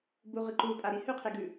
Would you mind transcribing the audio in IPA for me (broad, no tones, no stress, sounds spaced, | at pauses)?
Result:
b u ʁ ɨ ǃ u pʼ a ɾ i h ʉ qʰ e ɡ ʉ